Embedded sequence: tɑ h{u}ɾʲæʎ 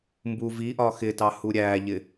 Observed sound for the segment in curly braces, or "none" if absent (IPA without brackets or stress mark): u